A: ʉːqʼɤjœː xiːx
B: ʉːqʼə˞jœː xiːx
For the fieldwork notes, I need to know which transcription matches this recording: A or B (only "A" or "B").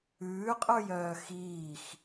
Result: B